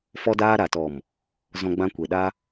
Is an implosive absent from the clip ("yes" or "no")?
no